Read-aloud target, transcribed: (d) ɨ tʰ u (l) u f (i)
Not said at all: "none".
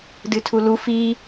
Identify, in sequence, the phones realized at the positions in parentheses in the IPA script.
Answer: d, l, i

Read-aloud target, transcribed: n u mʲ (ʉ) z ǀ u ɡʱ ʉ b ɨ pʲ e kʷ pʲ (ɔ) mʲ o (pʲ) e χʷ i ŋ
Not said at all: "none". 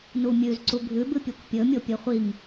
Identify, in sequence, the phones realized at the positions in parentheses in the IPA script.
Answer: ʉ, ɵ, pʲ

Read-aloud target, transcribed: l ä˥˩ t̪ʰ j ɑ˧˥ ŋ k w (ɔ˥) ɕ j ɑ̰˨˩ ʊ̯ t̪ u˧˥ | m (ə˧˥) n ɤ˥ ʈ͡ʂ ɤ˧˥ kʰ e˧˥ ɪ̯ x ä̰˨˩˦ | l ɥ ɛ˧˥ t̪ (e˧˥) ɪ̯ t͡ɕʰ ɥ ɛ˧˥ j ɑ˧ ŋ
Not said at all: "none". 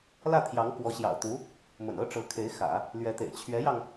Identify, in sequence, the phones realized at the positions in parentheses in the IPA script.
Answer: ɔ˧˥, ə̰˨˩, ḛ˨˩

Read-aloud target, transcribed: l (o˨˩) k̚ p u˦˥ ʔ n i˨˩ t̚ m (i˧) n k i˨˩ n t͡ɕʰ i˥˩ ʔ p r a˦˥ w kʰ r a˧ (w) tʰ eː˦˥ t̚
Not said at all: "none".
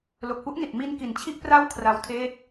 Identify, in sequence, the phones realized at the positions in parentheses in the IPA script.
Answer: o˨˩, i˧, w

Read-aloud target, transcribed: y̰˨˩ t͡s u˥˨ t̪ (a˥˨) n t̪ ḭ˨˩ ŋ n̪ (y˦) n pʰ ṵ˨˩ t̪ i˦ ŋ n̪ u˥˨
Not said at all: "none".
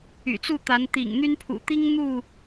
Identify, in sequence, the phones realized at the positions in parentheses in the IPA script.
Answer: a˨˦, y˦

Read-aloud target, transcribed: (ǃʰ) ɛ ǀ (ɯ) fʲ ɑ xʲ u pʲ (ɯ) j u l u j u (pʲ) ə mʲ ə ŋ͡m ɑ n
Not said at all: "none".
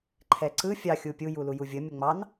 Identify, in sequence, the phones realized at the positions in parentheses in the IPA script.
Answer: ǃʰ, ɯ, u, vʲ

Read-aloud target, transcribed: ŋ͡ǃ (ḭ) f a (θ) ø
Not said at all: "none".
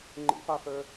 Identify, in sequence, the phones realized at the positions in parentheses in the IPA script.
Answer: ḭ, θ

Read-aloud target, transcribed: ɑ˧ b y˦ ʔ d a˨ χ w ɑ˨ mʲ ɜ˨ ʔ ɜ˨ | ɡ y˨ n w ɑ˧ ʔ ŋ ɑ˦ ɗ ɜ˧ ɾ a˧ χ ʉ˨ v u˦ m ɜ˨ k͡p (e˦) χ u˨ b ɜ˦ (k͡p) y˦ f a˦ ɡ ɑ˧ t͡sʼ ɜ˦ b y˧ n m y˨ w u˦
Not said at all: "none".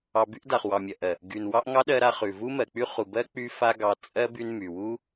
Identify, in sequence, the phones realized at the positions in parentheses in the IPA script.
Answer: y˦, k͡p

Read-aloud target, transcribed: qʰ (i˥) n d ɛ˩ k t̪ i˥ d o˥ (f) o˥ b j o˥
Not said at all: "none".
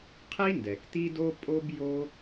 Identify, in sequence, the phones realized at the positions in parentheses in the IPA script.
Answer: i˥, pʼ

